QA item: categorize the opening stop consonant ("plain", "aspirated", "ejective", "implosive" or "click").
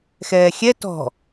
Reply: plain